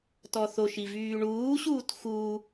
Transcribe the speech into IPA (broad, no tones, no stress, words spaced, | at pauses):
tɔθoʃi vyːɳuːɕuːt xu